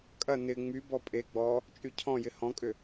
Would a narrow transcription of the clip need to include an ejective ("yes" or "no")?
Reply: yes